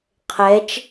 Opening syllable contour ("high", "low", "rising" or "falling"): rising